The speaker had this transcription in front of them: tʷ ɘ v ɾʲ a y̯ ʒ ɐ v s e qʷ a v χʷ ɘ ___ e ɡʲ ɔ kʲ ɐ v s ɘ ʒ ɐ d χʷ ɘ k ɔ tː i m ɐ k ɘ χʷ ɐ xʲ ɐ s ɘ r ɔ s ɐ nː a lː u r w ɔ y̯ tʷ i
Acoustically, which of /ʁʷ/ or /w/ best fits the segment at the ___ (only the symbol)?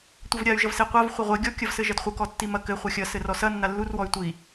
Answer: ʁʷ